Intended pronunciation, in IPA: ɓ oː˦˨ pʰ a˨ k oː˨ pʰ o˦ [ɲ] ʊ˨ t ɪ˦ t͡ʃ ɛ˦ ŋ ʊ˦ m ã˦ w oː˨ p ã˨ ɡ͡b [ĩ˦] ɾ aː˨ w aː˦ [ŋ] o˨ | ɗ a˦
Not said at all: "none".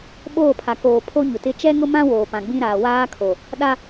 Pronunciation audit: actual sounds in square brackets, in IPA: ɲ, ĩ˦, kʰ

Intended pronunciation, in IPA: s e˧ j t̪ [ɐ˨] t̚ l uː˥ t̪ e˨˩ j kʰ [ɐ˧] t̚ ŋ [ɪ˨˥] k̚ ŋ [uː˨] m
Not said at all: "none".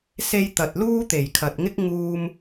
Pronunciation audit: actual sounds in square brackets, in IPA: ɐ˨, ɐ˨, ɪ˥, uː˥

